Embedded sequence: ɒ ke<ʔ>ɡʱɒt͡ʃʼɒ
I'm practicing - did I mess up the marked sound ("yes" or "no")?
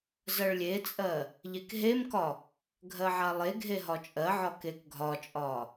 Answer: yes